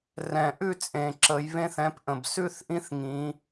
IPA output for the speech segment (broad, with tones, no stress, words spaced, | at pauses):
rɛ̃˨˩ʔʉ˥˧t͡sʼẽ˨˩ ǁə˩˧jβẽ˦˥θɛ̃˨˥pʔə̃˨˩b sʉ˥˧θʔĩ˦˥θŋĩ˩˧